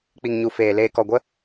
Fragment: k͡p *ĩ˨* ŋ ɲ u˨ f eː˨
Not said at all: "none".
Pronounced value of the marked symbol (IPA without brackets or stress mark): i˨